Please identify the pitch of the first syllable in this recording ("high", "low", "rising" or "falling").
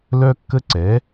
high